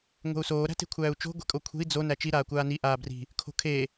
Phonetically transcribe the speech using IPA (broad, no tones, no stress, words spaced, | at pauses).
ŋʷe̤u̯soː ɾæ̤te̤kʷʰæːu̯t͡ʃo̤ ɡʷe̤kʼokʷʰe̤i̯ d͡zo næt͡ʃi ɾaːkʷaːni ʔaːbri̤ | kʰo̤kʰe